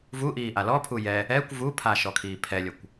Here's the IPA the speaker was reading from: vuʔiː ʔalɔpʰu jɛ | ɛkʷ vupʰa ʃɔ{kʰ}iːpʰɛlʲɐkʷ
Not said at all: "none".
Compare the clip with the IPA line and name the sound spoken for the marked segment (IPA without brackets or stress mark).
kʰ